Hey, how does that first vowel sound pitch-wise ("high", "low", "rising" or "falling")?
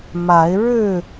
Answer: rising